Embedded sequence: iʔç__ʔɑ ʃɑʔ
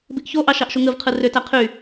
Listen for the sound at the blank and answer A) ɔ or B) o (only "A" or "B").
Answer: B